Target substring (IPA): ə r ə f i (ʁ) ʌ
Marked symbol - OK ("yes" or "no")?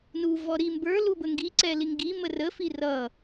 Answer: no